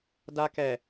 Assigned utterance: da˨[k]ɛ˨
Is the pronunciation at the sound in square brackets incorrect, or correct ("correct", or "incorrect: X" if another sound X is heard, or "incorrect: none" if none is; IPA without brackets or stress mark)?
correct